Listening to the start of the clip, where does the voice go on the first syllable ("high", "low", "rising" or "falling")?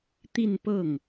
falling